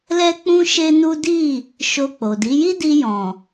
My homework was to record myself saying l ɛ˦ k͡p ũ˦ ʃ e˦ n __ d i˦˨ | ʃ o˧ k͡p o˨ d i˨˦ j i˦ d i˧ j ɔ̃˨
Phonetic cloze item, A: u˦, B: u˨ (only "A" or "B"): A